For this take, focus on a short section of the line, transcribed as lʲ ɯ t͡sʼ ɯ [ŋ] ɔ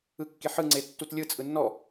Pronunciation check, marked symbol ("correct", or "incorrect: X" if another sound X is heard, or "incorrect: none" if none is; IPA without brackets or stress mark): incorrect: nː